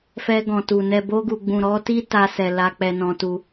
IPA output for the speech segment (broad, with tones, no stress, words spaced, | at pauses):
fɛ˧ɡɔ̃˨tu˨ nɛ˨bo˧ɡu˨ɡ͡bũ˨ ɾɔ˨˦ti˦ ta˧sɛ˨ la˧k͡pɛ˧nɔ̃˧tu˧